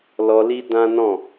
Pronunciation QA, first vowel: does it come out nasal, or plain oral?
oral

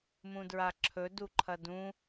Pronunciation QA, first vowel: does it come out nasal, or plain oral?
nasal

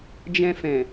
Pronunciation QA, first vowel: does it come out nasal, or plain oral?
nasal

